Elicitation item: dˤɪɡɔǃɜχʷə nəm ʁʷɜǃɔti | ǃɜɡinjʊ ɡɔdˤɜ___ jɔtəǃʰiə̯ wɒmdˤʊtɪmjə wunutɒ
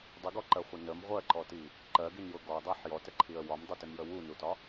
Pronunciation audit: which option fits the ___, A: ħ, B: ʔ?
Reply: A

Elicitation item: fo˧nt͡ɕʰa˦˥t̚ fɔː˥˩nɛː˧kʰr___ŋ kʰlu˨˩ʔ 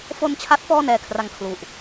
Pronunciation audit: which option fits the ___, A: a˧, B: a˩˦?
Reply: A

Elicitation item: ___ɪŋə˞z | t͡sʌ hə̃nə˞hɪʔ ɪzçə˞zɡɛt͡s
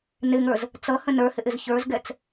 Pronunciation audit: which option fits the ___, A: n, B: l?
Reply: A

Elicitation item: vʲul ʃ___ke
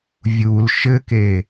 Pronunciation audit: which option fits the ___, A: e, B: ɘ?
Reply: B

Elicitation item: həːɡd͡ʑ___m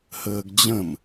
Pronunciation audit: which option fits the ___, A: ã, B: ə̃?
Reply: B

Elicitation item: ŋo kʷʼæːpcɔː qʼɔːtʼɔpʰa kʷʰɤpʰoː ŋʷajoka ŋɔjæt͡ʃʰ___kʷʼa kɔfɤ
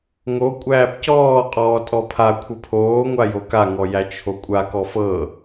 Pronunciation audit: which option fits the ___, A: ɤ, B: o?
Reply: B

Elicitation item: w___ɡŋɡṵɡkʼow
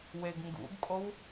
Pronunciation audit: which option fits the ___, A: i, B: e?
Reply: B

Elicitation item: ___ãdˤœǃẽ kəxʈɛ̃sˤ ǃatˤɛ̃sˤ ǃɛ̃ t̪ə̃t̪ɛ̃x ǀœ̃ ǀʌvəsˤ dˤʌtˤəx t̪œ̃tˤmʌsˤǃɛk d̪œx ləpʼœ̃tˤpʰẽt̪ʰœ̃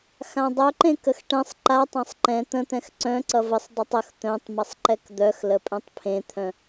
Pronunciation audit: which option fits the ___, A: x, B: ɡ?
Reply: A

